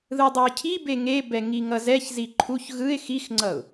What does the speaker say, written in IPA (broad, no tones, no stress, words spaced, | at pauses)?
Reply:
ðɯdˤɛɪ̯cʰibe ŋebɛ ŋiŋʌzɛçzi ǃʰuç ɣɯɪ̯ xixŋ͡ǀʌʊ̯